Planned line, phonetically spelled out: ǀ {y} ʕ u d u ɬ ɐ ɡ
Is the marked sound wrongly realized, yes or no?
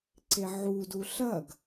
yes